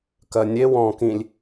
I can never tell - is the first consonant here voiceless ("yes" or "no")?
yes